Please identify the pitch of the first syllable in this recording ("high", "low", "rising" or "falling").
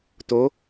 rising